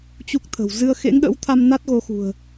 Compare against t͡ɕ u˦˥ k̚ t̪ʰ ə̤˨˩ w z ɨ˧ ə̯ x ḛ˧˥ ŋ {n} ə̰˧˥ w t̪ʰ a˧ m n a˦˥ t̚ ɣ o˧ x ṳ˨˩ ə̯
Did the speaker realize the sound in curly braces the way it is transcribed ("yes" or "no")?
no